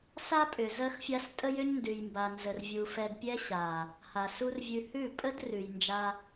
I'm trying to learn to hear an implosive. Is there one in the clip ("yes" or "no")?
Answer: no